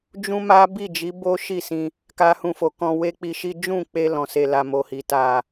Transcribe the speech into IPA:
d͡ʒũ˦ma˦ bi˦˨d͡ʒi˨˦ bo˦ʃi˦˨sĩ˧ | ka˦hũ˦˨fo˧ kɔ̃˧we˦k͡pi˧ʃi˦ d͡ʒũ˦˨k͡pe˧ lɔ̃˨se˨ la˨mo˨hi˨ ta˨

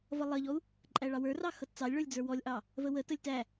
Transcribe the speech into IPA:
vʌlˠʌʎɔu̯ | ǃʼæɭɑwə˞rɑ xʌtt͡sɑlʲɭə˞lʲ d͡zə˞wɔlʲʔɑ | vəwətəlʲ tæ

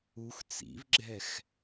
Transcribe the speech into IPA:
ux t͡sḭvɡ͡ǁɛx

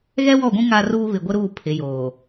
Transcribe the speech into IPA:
ɣɛ˦wɔ˦˨ɡʷũ˦ ŋa˦ruː˦ βɪ˨ɡʷɪ˦ɾuː˦˨ pʰɪ˨˦joː˨

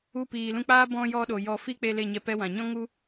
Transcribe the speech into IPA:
u˧piː˨lũ˧k͡paː˦ bɔ̃˧ jɔ˧ɗo˨ jɔ˧ fi˦k͡pe˧ le˦˨ɲɛ˧ pɛ˧wã˨ ɲɔ̃˦ŋu˦

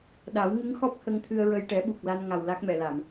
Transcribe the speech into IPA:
ɗa˨˩˦wŋɨ˧˥ŋxɔ˦˥p̚ hə˧ŋt̪ʰɨ˧ə̯ɹə˧j ʈɛ˨˩˦ɓu˨˩k̚la˧nŋa˨˩w la˦˥k̚mɛ˨˩˨la˨˩˨m

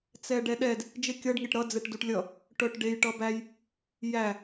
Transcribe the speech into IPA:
t͡sɛɖɛɗɛd | d͡ʒekʲʌɖ ŋeʈɾʌ d͡zɛʈduʈlʲʌ | ʈœʈɖej ʈʌbæj | jæ

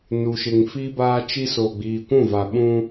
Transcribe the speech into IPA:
nu˨ʃɪ˨ŋ fiː˦baː˦t͡ʃi˦ so˨ɡ͡biː˨kʷũ˦˨va˨ ɓũ˦

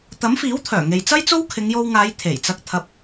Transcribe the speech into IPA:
t̪ɐ˨˥mfiː˨˥wt̪ʰœː˨˩ ŋe˨jt͡sɐ˥jt͡so˥w kʰɪ˨˧ŋjo˧wŋaː˨˧j t̪ʰe˨˩jt͡sɐ˧k̚ t̪ʰɐ˧p̚

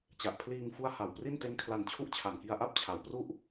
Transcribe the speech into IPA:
t͡ɕa˨˩ʔpʰliː˧ŋ fu˦˥a̯ha˨˩w pri˥˩n te˦˥nkʰla˧nt͡ɕʰu˦˥ʔt͡ɕʰa˨˩n ki˧a̯ʔa˥˩p̚t͡ɕʰa˩˦wpru˥˩ʔ

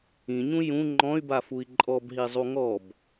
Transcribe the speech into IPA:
ĩɲũ jũ ŋ͡ǃɔ̃y̯bafui̯ ǃʼɔbɦizˤu ŋɔb

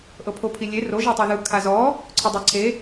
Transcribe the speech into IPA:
ʔɤpʰopʰilʲe roʒ etˤoðɯ kʰazɔ | ǀʰɤdˤaǀʰe

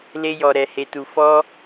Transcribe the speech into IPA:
le˦jɔ˧ɾɛ˧ he˧tu˧ fɔ˦

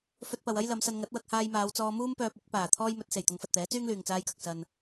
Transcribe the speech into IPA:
fɵ˧t̚pɐ˨wɐ˥j lɐ˨˧msɐ˧nŋɐ˨˥t̚ wɐ˧k̚haː˧jmaː˨˧wt͡sɔː˧ muː˥mpœː˧p̚ ɪ˨˥k̚ paː˨˩ t̪ʰɔː˥jmɵ˨˥t̚ se˨˩jt̪ʊ˨˧ŋfɐ˨t̚t̪ɛː˨˥ t͡syː˥ŋlyː˨ŋt͡saː˧jkɐ˨k̚ sɐ˨n

